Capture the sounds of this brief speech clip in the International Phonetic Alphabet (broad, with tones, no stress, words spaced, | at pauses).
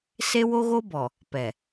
se˦wo˦ɣo˦bɔ˨ | pɛ˨